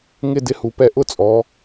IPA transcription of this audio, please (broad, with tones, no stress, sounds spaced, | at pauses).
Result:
ŋ ɪ˥˧ d ɪ˧ h u˩˧ p ɛ˧˩ ʔ ʊ˥˧ t͡sʼ ɔ˩˧